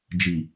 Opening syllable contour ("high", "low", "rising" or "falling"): low